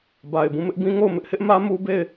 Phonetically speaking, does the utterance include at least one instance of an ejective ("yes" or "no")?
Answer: no